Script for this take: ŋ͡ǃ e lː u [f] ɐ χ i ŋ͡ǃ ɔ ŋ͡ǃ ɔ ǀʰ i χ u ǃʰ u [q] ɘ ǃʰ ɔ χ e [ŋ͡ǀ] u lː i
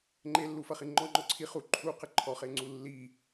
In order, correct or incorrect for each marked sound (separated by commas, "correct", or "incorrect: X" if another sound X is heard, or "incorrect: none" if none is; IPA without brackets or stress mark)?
correct, correct, correct